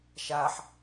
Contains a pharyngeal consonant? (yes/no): yes